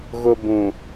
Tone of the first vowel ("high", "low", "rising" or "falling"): high